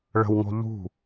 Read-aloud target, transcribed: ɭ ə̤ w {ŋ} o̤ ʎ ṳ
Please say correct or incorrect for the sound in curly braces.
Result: correct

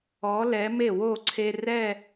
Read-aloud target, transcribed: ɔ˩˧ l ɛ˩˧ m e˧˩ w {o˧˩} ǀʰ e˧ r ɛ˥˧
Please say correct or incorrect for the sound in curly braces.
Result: correct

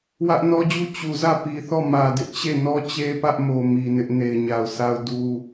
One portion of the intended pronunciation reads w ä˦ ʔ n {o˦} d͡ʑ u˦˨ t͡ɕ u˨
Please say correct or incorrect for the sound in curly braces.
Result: incorrect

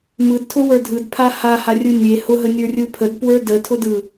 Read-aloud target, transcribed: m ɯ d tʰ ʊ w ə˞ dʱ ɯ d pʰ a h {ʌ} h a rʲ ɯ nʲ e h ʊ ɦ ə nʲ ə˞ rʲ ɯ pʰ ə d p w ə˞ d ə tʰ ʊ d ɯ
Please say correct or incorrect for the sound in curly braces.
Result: incorrect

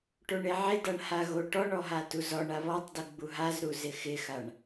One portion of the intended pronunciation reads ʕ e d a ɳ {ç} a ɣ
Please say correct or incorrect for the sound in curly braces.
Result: incorrect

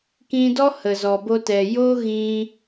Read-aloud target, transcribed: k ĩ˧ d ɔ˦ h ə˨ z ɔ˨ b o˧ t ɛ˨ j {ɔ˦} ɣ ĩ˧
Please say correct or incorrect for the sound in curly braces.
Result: incorrect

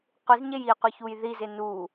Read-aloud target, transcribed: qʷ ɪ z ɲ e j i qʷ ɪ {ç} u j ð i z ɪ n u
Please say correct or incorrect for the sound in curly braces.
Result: correct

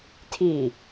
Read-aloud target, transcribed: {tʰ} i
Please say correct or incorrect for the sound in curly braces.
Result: correct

